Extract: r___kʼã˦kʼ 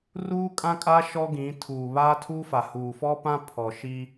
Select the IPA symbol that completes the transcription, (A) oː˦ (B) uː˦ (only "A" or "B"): B